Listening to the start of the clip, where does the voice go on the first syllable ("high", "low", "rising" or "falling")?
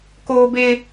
high